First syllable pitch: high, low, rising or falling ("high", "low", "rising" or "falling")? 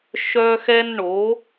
high